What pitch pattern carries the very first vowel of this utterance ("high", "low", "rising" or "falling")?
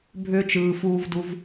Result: high